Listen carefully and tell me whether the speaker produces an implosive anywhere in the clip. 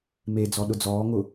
yes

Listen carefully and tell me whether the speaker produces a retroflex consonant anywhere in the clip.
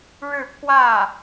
yes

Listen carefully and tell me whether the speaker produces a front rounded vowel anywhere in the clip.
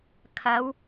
no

